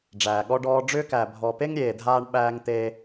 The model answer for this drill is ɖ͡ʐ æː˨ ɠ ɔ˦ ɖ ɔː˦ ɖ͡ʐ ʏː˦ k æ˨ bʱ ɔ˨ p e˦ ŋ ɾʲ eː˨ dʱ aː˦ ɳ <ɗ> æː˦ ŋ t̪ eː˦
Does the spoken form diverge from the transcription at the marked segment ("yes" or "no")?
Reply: yes